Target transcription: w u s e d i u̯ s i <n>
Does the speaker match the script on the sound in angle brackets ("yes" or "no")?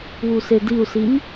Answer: yes